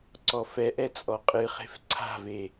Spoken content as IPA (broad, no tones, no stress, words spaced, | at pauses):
ǀɔfɛʔɛ t͡sʼɔqʼɨχe̤f ǀʰa̤ve